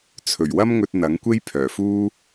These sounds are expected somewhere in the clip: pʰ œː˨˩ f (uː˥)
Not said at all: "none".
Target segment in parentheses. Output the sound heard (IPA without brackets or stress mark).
uː˥